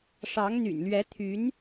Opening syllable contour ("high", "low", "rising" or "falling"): rising